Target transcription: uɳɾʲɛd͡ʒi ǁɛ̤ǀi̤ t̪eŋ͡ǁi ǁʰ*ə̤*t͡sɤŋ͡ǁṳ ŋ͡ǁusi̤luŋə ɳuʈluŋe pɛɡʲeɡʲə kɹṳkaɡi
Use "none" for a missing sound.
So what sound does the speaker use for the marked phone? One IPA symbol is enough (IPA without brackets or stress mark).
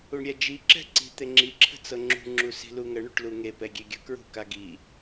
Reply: ə̤